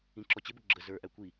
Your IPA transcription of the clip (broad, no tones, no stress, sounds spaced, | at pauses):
ĩ ǁ ɔ t͡ɕ ɪ b ʊ ɡ͡ǁ ə z ə˞ ʔ æ kʷ i